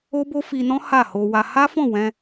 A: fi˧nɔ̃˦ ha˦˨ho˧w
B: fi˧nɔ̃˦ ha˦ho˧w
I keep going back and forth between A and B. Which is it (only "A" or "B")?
A